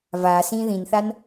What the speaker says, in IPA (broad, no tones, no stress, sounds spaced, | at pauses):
v a s ĩ ð ĩ n θ a n